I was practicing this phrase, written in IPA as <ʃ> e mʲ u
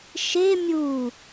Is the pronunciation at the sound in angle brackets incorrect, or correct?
correct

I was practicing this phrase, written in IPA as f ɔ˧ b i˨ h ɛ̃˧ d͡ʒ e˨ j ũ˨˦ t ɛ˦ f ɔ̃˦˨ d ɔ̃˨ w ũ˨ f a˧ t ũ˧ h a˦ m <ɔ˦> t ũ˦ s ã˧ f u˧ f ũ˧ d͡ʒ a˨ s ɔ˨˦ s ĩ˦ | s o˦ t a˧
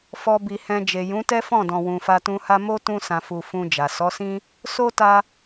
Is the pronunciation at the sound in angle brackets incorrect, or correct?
incorrect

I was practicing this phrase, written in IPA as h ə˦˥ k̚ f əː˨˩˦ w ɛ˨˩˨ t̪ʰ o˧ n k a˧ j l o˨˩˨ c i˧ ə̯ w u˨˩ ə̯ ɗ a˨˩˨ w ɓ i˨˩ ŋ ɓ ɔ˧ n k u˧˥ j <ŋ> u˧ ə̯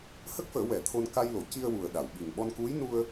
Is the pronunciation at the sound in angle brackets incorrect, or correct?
incorrect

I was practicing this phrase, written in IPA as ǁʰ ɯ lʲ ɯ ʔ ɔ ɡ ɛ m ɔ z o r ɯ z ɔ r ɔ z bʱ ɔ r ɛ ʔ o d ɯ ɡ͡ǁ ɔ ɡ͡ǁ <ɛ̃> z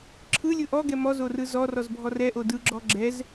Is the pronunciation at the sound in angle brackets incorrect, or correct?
incorrect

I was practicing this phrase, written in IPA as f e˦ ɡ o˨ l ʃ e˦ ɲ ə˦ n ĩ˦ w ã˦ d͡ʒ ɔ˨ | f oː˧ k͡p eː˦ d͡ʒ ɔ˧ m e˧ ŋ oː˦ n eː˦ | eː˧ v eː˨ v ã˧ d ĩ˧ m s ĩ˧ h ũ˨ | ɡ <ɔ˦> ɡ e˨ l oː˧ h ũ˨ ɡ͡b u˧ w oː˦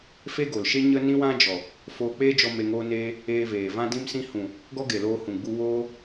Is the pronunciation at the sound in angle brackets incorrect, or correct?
correct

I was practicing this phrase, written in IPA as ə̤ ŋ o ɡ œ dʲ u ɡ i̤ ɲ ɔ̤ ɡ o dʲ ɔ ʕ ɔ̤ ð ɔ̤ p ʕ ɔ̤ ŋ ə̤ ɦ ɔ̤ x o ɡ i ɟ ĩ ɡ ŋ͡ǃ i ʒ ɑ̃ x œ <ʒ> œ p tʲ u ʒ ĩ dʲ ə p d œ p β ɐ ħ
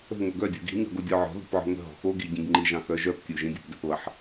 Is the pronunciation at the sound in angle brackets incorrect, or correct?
correct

